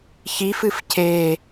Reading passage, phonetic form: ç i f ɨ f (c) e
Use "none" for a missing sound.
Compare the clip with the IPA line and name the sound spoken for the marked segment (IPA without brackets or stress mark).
c